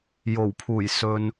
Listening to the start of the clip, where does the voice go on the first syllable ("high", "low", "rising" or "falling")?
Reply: low